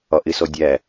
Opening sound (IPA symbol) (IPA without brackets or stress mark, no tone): ɒ